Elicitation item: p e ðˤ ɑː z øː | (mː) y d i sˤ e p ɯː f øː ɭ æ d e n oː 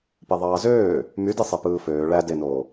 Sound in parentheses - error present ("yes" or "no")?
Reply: yes